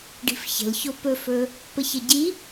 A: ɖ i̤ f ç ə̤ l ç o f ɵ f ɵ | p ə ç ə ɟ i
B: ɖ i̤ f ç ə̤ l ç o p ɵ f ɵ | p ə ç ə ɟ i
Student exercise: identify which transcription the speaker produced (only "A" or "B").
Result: B